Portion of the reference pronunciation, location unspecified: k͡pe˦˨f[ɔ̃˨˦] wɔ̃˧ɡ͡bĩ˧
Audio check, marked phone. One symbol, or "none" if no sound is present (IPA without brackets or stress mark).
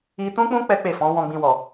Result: ɔ̃˨˦